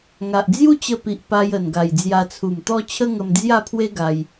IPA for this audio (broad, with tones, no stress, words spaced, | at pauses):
ŋa˨ʔd͡zju˦t͡ɕə˧pi˨ʔ pa˧jə˨˩nɡa˨˩j d͡zja˧t͡sʰu˨˩mt̪ɔ˦ t͡ɕʰə˦ŋə˧md͡zja˥˧pʰwe˦ ɡa˧j